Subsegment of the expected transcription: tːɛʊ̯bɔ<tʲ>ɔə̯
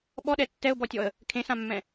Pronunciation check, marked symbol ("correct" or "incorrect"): correct